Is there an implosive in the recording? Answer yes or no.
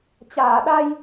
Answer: yes